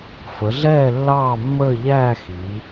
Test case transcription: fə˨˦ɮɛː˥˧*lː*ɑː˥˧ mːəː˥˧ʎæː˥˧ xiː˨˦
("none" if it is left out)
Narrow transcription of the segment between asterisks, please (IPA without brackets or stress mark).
lː